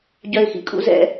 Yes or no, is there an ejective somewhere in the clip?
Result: yes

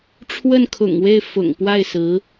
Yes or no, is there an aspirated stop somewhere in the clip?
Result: yes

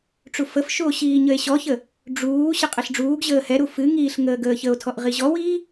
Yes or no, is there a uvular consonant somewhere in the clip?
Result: yes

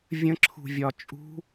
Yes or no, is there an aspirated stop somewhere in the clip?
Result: yes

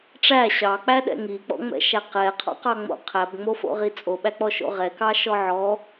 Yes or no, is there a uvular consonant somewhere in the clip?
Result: yes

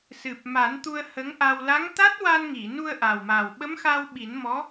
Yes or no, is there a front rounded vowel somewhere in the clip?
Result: no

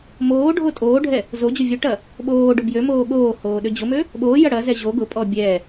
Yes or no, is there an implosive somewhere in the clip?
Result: yes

